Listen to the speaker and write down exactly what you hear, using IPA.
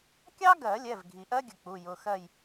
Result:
kʲ ɑ˥ ɡ ɜ˨˩˦ lʲ ɛ˩˧˩ v ɡʱ i˩ ʔ ɜ˥ ɡʲ ə˩ k͡p u˩˧˩ j ʊ˩˧˩ x ɜ˥˨ j

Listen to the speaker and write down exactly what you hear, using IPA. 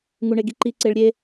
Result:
ŋ u ɳ e ɡ i ǃ i ǀ e ɭ ɾʲ e

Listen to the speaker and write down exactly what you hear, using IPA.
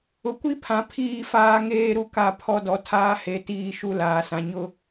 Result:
ʊ˨ kʷ i˦ pʰ ã˨ pʰ iː˦˨ f aː˦ ŋ eː˦ ɾ u˦ k a˦˨ pʰ ɔ˦ d ɔ˨ tʰ aː˦ h e˨˦ t iː˦˨ ʃ u˦ l aː˨ s ã˨ ɲ ʊ˦

